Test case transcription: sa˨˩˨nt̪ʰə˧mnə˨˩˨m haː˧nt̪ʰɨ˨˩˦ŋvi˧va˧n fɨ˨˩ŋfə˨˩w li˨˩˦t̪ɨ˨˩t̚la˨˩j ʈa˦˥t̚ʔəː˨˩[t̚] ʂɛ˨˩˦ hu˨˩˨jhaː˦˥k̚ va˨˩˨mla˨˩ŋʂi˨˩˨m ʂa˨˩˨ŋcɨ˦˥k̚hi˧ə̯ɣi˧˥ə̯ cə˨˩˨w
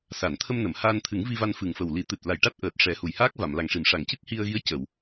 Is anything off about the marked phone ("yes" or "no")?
no